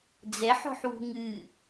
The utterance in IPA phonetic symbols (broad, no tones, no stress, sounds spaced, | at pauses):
d͡z ɛ ħ ɔ̤ ħ w ṳ ŋ ɨ